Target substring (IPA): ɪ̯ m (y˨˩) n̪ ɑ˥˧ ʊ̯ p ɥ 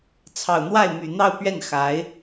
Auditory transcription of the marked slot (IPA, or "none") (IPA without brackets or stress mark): y˨˩